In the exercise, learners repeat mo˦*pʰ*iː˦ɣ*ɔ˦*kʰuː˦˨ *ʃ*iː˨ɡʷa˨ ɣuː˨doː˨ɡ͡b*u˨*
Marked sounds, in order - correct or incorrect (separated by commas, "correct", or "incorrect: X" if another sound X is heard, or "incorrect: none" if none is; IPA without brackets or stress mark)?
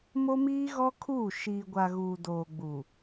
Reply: incorrect: m, correct, correct, correct